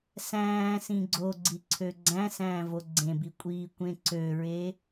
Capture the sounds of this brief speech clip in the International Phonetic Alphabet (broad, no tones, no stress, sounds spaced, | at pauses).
s æ̃ː s ĩ ɡ͡ǀ o ɡ͡ǀ i ǀʰ ø ɡ͡ǀ æ̃ s æ̃ː v o ɡ͡ǀ ẽ b i kʷʼ iː kʷ ẽ ǀ ø ɹ e